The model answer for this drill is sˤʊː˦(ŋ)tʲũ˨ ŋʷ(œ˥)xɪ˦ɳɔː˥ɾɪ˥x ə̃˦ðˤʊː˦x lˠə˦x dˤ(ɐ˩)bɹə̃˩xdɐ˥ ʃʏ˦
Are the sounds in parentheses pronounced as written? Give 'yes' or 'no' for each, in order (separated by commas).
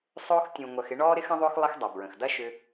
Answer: no, no, yes